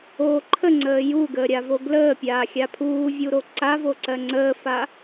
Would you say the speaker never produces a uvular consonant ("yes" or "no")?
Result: yes